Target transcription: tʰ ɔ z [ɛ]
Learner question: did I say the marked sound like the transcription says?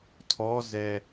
yes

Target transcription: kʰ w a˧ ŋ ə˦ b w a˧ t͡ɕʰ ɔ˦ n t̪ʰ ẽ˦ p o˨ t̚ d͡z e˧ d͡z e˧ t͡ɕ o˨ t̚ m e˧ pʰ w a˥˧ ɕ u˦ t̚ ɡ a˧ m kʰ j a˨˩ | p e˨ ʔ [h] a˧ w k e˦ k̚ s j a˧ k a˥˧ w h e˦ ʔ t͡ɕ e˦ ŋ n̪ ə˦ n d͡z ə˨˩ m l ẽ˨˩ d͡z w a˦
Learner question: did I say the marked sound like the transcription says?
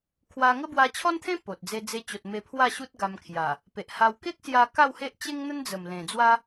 yes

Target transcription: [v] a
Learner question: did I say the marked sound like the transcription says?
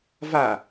yes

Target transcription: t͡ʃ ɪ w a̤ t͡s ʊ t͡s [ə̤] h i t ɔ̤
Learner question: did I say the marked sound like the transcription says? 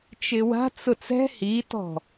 no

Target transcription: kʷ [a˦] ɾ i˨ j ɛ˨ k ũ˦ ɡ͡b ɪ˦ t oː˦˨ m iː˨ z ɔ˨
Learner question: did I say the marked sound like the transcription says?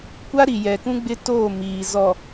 yes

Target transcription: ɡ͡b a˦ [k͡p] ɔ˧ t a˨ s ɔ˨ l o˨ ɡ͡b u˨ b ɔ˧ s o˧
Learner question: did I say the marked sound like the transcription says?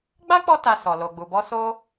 yes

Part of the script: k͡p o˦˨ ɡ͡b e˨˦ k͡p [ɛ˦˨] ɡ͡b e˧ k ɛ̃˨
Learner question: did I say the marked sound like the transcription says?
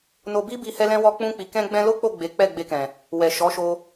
yes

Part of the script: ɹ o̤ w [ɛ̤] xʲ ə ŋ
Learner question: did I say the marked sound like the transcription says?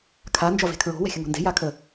yes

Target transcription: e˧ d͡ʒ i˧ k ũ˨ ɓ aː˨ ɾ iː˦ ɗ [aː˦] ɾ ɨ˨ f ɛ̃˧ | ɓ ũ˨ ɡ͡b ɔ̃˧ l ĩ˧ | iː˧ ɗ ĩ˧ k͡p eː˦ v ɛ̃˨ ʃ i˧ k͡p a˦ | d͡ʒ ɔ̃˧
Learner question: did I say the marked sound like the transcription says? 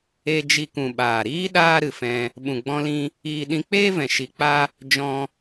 yes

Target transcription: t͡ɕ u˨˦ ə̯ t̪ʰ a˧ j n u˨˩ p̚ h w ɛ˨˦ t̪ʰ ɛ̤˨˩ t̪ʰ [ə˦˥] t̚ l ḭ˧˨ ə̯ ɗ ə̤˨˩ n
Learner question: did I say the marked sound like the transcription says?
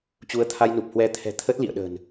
yes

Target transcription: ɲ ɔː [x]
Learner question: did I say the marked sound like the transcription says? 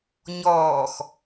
yes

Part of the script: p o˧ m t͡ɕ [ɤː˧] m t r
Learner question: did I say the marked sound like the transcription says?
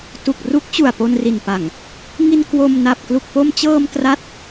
yes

